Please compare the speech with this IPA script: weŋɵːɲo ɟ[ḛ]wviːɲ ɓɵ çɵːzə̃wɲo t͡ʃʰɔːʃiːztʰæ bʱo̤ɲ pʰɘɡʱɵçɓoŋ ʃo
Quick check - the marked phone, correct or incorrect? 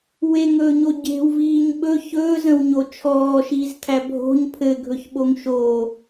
incorrect